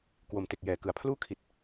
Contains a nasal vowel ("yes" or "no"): no